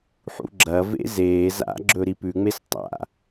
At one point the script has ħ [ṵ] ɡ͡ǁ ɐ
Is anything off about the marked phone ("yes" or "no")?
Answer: no